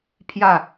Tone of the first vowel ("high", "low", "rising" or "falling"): falling